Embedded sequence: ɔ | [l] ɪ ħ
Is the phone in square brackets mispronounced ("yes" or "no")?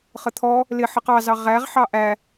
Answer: no